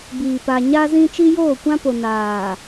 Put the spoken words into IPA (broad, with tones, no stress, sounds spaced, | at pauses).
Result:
b iː˨ p a˨ ɲ a˦ z ĩ˦ t͡ʃ i˦ j oː˦˨ kʷ ã˦ p o˨ n aː˨